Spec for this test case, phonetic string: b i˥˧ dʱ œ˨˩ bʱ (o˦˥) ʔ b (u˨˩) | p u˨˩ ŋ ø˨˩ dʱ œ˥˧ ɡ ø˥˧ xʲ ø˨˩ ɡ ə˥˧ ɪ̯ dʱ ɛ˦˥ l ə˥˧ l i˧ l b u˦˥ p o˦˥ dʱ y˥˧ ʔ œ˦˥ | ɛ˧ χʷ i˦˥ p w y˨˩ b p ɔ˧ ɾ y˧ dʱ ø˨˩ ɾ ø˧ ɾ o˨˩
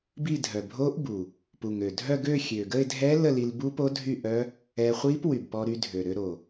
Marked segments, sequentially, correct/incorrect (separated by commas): correct, correct